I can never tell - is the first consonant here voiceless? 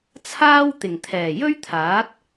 yes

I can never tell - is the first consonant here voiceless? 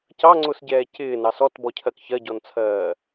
yes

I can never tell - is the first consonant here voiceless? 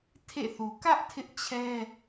yes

